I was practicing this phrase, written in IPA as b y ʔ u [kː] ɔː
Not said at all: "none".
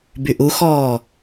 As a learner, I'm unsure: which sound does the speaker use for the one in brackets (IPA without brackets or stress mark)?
x